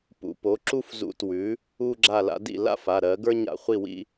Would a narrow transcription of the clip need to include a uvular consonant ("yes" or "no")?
yes